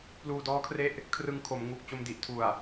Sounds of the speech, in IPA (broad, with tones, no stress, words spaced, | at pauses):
pluː˧dɔː˦˥kʰre˦˥ʔ | kʰrɯ˧ŋkʰo˩˦m ŋuː˨˩k̚t͡ɕo˧mdi˨˩ʔ tʰu˨˩a̯